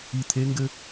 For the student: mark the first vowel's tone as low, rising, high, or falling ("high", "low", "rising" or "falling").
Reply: low